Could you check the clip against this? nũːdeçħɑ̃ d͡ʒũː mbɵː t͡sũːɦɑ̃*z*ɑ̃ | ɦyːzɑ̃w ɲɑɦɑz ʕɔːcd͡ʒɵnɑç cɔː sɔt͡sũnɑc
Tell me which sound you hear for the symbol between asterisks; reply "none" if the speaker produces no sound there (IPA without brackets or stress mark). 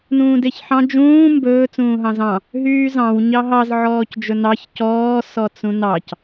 z